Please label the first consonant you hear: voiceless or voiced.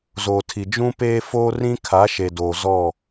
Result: voiced